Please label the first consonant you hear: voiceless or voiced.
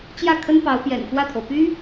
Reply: voiceless